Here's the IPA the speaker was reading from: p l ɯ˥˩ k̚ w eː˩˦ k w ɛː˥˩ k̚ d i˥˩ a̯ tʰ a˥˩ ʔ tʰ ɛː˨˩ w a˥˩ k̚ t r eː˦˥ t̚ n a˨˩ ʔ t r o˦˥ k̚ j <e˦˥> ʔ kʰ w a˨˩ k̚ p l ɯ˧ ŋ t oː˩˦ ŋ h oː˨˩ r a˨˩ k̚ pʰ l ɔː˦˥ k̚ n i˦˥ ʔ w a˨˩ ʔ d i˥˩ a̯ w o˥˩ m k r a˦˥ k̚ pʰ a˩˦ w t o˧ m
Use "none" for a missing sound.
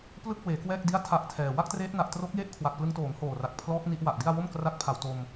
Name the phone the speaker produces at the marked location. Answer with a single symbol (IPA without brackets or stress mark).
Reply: e˥˩